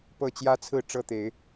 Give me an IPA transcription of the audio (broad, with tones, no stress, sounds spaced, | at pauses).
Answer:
p ɤ˥˨ t͡ɕ j ä˦ t͡sʰ ɹ̩˥˨ ʈ͡ʂ ɤ˦ t̪ e˨˦ ɪ̯